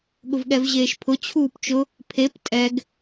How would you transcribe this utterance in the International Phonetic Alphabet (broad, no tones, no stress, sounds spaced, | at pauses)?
ɠ ʊ v ɠ ɛ v ʑ eː ʃ pʰ ʊ t͡ɕʰ uː p t͡ʃ ʊ | pʰ e p tʼ ɛ ɡ